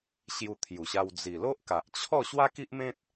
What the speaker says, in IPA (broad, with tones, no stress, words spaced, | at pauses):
ɕju˧t̪ʰju˨˩ɕa˧w d͡zi˨˩lo˦ʔka˨ʔ t͡ɕʰɔ˥˧ ɕwa˦ki˦ʔmẽ˦t̚